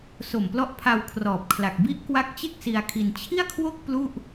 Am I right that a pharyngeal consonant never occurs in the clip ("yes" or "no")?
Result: yes